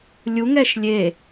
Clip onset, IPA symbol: lʲ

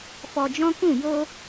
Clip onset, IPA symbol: f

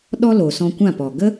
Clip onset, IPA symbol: ɗ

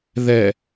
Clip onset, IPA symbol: ð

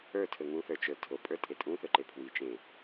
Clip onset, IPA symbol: ə˞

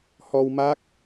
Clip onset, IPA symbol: h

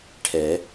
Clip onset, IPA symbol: ʈʰ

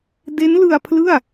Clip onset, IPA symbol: d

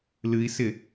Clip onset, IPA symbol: l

